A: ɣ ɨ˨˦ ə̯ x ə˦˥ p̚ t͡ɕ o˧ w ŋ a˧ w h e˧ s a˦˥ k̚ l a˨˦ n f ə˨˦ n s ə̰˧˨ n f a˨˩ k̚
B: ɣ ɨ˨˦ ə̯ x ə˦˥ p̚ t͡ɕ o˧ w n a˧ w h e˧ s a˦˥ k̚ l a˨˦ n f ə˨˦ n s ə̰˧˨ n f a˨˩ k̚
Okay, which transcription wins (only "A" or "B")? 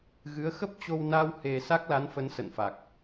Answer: B